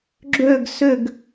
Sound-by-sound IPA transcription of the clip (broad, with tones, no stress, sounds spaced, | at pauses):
ɡ͡ǁ ø˥˧ ɡ s ʏ˥˧ ɡ